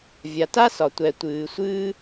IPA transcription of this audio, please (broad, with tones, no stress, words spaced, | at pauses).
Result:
vʲa˨ta˥ sɒ˨ tʷɛ˨tʷɨː˨sʷɨː˥